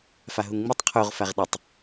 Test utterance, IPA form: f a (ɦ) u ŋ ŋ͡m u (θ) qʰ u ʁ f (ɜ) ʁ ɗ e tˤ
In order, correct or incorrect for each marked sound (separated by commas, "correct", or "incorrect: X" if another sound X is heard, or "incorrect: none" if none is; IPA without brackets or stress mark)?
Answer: correct, incorrect: tˤ, incorrect: æ